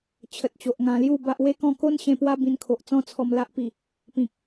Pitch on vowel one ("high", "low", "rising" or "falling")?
low